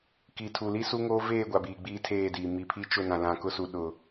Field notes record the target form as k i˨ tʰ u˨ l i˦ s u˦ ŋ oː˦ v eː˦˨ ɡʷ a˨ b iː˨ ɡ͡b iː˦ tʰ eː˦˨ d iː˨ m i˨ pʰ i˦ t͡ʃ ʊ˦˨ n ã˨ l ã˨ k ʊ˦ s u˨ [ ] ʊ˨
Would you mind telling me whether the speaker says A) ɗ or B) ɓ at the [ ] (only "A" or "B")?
A